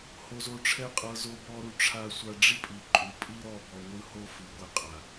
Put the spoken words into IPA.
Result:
h o˧ z o˧ ʈ͡ʂʰ ɛ˦ qʼ ɤ˧ z o˧ b ɔ˧ ɾ u˨ ʈ͡ʂʰ a˧ sʷ a˧ ɖ͡ʐ i˦ pʼ i˨ ǃʼ u˨ pʼ i˦ ɾ ɔ˦˨ b ɔ˧ ŋʷ ɯ˦ h o˦ f ɯ˨ ɡʷ ɛ˧ qʼ a˨

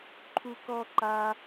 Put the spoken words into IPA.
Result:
ǃʰ u k ɔ ǃ a

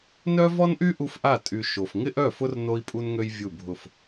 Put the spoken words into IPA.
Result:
n œ˦ v ɔ˦ n ʔ y˦ ʔ u˦ f ʔ a˦˨ tʼ y˨ ʃ o˨ f ŋ ɪ˦ ʔ œ˦˨ f ʊ˦ r n o˦ i̯ pʼ u˦ n ŋ ø˦ j vʲ u˦˨ bʱ ʊ˦˨ f

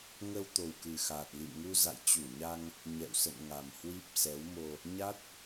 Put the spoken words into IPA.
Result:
ŋ ə˧ w t̪ o˨˩ w k ɨ˨˩ x aː˨˩ t̚ l ḭ˧˨ m ŋ u˧ z a̰˧˨ j t͡ɕ u˧˩ ɲ a˧ ŋ | ɲ ɛ̰˧˨ w s ə̰˧˨ n ŋ a˨˩ m h w i˦˥ p̚ s ɛ˨˦ w m o˧ | ɲ a˦˥ t̚

